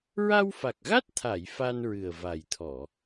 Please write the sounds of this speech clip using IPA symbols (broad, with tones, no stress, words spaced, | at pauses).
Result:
ɹa˧wfa˨˩k̚ɣa˦˥t̚t̪ʰa˨˩˨j fa˧nɹɨ˨˩ə̯va˨˩j t̪ʰɔ˨˩˨